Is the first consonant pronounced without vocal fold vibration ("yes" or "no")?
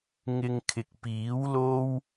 no